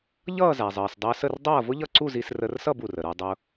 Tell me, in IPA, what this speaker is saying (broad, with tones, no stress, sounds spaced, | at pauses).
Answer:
ʎ ʌː˥˨ z æ˩ zˤ əː˩ s dˤ əː˧ s ə˥˨ r dˤ ʌː˥˨ v ʊ˥ ʎ ʌ˥˨ ǀ u˥˨ z i˧ s r əː˧ r s ʌ˥˨ b u˩ r ə˩ ɾ ə˞˧ dˤ ʊ˧